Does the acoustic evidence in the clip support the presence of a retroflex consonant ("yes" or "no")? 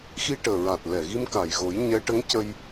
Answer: yes